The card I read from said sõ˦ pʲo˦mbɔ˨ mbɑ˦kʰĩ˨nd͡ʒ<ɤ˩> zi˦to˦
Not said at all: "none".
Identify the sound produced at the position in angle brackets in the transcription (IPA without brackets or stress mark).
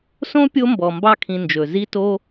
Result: ɵ˩